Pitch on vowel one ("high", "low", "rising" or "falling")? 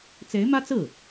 rising